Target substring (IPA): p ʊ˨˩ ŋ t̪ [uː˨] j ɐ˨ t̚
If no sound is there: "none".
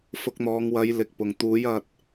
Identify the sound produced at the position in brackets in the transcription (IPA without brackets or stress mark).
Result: uː˨˥